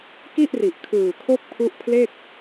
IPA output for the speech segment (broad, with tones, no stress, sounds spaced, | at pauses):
k i˥˩ ʔ r i˨˩ ʔ kʰ ɯː˨˩ kʰ o˦˥ k̚ pʰ u˦˥ ʔ pʰ l e˥˩ k̚